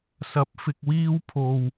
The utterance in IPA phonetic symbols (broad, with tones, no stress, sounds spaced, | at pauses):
s ɐ˨˥ p̚ f ɪ˧ k̚ w iː˥ w pʰ o˧ w